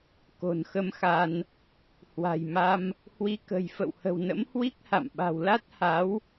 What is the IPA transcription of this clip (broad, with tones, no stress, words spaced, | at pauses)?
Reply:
ko̤˨˩nxə˧mxa˧n | hwa̤˨˩jma˧m | hwi˨˦kə̤˨˩j fə̰˧˨whə̤˨˩wnə̰˧˥m hwi˦˥k̚ha̰˧˨m ɓa̤˨˩wla˦˥t̚ha˨˦w